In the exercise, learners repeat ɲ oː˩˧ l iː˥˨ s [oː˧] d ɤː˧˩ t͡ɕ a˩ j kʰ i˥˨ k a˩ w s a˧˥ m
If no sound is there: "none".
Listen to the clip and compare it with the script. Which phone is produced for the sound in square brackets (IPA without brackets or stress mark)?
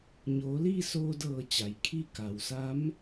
oː˧